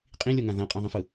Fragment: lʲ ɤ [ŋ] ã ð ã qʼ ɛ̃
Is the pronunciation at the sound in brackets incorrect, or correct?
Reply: correct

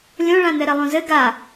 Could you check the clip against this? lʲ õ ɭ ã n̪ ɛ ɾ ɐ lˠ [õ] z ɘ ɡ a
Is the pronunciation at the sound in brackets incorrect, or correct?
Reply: correct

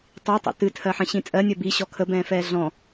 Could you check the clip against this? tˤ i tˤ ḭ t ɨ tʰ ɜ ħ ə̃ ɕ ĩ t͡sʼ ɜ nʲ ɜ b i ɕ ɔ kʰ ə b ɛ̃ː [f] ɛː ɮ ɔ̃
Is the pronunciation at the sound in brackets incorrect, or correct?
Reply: correct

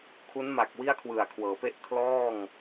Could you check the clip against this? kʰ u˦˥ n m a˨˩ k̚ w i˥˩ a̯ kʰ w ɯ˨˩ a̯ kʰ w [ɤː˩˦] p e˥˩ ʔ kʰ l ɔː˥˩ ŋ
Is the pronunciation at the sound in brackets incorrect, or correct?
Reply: correct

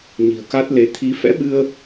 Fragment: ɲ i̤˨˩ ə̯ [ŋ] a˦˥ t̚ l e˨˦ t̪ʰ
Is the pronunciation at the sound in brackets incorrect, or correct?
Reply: incorrect: k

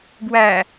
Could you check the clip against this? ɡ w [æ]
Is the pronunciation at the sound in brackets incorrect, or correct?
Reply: correct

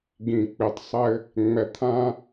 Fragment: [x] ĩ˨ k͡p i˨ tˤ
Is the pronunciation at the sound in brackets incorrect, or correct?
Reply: incorrect: ɡ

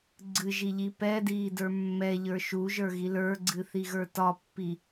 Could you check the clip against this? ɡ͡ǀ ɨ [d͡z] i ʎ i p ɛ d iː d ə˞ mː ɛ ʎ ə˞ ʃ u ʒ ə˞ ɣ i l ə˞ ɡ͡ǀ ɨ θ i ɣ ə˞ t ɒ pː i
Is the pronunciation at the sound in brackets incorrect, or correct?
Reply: incorrect: ʒ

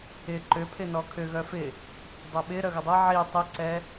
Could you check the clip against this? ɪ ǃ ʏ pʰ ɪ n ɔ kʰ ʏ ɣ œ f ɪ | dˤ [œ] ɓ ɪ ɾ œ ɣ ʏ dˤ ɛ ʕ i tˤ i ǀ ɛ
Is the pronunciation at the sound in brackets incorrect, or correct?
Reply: incorrect: ø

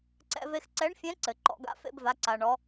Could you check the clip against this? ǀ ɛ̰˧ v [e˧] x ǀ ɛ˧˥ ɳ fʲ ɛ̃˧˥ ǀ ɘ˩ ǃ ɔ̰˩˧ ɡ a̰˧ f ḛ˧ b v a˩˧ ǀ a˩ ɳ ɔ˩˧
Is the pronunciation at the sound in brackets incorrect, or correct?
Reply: correct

